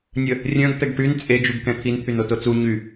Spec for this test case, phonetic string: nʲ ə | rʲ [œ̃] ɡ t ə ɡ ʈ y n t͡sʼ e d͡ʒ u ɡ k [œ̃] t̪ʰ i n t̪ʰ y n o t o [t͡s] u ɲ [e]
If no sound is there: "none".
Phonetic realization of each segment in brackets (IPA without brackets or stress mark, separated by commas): œ̃, ɛ̃, t͡s, y